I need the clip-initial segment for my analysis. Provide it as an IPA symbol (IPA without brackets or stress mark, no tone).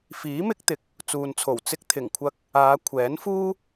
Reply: f